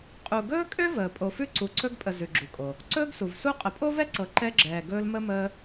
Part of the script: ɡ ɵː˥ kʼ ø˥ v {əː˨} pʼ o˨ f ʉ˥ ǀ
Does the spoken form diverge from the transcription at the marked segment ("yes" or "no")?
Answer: yes